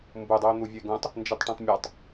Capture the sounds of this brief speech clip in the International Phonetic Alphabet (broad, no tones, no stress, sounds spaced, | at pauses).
m b u dˤ u o̯ n̪ u vʲ ɨ e̯ ɡ ũ tˤ | n d͡ʒ ɨ tˤ ʈ ĩ tˤ mʲ a tˤ